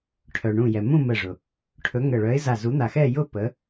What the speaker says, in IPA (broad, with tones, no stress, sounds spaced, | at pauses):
ʈʰ œ˩ ɳ ũ˧˩ j ɛ˩ m ũ˥˧ m ə˧˩ ʐ ʊ˩ | ʈʰ ɵ˨˥ ŋ ə˧˩ ɭ œ˨˥ ɪ̯ z a˧˩ z u˨˥ n̪ a˧˩ x ɛ˥˧ j ʊ˥˧ p ə˨˥